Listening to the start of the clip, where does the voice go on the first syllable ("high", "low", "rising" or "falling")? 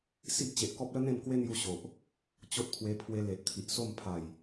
high